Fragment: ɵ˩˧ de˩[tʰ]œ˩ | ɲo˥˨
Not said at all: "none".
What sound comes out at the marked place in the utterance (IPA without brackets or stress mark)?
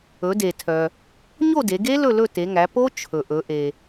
tʰ